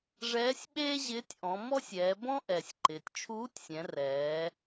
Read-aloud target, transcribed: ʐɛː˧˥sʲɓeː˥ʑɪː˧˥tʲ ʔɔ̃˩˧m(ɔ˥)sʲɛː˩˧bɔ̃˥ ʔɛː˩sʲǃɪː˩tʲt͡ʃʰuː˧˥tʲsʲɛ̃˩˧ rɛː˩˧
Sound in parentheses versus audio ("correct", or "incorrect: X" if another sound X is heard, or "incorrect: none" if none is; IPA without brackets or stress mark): correct